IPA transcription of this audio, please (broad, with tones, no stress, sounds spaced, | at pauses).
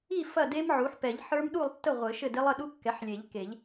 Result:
i˥˨ f ɐ˥˨ d e˦˥ m ʕ u˩˥ ħ p ɛ˨˩˦ ʎ ħ ə˞˦˥ m ɗ u˥˨ lˠ tː ə˥˨ ʁʷ ɘ˨˩˦ ʃ ɘ˥˨ d e˦˥ lˠ ə˥˨ ɗ u˦˥ kː ɛ˩˥ ħ lʲ e˨˩˦ ʎ k e˨˩˦ ʎ